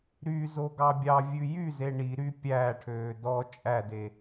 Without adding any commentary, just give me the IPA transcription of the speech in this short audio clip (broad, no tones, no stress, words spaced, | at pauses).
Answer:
ɾyzo ɡɑbʲɑvʲʉ jyze ɳiɾy pʲæːʈʰøː dɔ t͡ʃʼæde